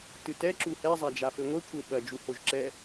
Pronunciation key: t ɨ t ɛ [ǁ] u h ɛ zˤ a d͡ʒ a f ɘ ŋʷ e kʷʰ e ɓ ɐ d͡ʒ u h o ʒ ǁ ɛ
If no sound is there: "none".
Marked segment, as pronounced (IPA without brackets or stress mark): ǁ